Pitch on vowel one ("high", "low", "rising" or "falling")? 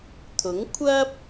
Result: rising